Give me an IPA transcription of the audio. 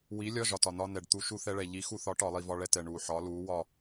w i˩˥ lʲ ɒ˧˥˧ ʒ ɒ˩ t ɒ˩ n ɒ˧ n ɛ˩ ɖ t̪ u˧˩˧ ʃ u˧ θ ɛ˧ ɭ ɛ˩ ʎ i˩˥ x u˧˩˧ θ ɒ˩˥ ʈ ɒ˧˩˧ lˠ i˧˩˧ v ɒ˧˥˧ ɭ ɛ˥˨ t ɛ˩ ɳ u˩ ħ ɒ˩˥ l u˩˥ w ɒ˥˨

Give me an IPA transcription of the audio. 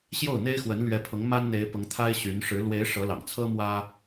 ɕ j o˥˩ ʊ̯ n̪ e˥ ɪ̯ x w ə˧˥ n l ɥ ɛ˧˥ pʰ ʊ˧˥ ŋ m a˥ n n̪ e˧˥ ɪ̯ p ʊ˧˥ ŋ t̪ʰ a˥ ɪ̯ ɕ y˧˥ n ʂ ɻ̩˧˥ l w e˧˥ ɪ̯ ʂ ɤ˧˥ l ɑ̰˨˩ ŋ t͡sʰ ɤ˥ m w ä˥

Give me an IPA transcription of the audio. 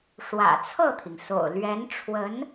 ʂ w ä̰˨˩ t͡sʰ ɤ˥˩ t̪ʰ i˩ ŋ s o̰˨˩ ʊ̯ l ɥ ɛ˧˥ n ʈ͡ʂʰ w ə˧˥ n

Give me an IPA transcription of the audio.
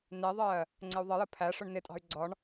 n ɛ ðˤ ɜː | ŋ͡ǀ ɪ u̯ ðˤ ʌ j ə pʰ æ ʂ ʊ ɳ n ɪ tʼ ɑ̤ y̯ ɡ͡ǀ ɒ ɳ

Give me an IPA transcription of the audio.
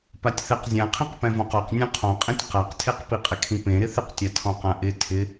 p a tʲ θ ɛ q zʲ ã qʰ ĩ q p ɛ̃ v ɔ̃ q ɔ q nʲ ũ qʰ ɔ̃ qʼ ĩ tʲ q a q tʰ e q p i qʼ ɪ kʰ ĩ p ẽ ɾ ɪ θ ɪ q tʲ a tʰ ɔ̃ q ã ʔ ɪ tʰ ɪ

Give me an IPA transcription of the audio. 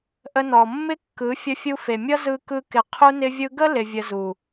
ʔ ə˧ n ɔ˨ mː ɪ˦ kː ɯ˨˦ fʲ ə˧ fʲ u˧ f e˨ mʲ ʌ˦ z ɯ˦ k ɯ˦ k ɪ˧ qʰ u˧ n ɪ˧ vʲ ɯ˧ ɡ ə˦ l ɪ˧ vʲ ə˧ z u˨

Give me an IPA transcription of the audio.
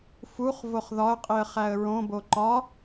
f u χ v o χ ð ɒ ə̯ qʼ i ə̯ χ æ ə̯ ɹ õ b o ǃ ɒ

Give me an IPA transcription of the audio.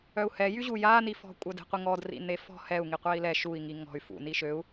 œ u̯ h ɛ j y ʑ u j a n i f ɔ̤ kʷʼ œ d e̤ qʷ i ŋ ɔ d r ḭ n e f ɔ̤ h ɛ u̯ ŋ i qʷ ɛ i̯ l ɛ ʃ u i̯ ŋ i ŋ ɔ̤ y̯ f ṵ n i ʃ ø u̯

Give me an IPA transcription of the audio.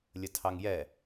lʲ ə tʰ ɑ ŋ j ɛ

